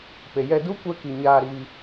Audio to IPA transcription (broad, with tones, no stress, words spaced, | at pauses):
pe˨jɛ˧du˦ kʷɛ˧ki˨ ɲaː˧ɾiː˧